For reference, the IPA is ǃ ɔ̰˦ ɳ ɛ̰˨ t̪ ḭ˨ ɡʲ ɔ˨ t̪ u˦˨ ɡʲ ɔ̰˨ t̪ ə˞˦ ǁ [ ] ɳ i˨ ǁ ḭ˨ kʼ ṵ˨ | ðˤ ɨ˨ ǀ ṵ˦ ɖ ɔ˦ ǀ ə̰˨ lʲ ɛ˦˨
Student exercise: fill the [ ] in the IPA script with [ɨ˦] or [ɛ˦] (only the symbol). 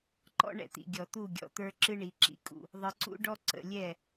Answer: ɨ˦